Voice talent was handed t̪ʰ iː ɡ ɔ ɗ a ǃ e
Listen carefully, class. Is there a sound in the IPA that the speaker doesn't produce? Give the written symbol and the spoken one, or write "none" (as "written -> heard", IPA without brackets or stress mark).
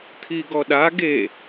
ǃ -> ɡ